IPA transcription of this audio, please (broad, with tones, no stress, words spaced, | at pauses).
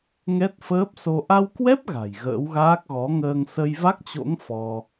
ŋɛ˦˥t̚fəː˦˥p̚so˧ ʔa˧wkwɛ˦˥p̚ ɣa̤˨˩jɣə̰ː˧˥wɣaː˦˥k̚ ɣɔ˨˦ŋəː˧ŋ sə˧jva˦˥k̚t͡ɕo̰˧˥ŋ fɔ˧